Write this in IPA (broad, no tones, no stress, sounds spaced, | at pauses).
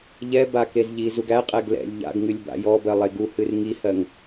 ʎ ɛ b a k e z ʎ i z u ɡ æ qʼ ɛ ɡ l ɛ̰ lʲ ʎ a̰ ɡ ŋ ɨ lʲ b a̰ j ɔ b ɜ lˠ e ɡ u h ɨ r ŋ i h ɜ ŋ